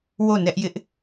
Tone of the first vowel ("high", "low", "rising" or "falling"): falling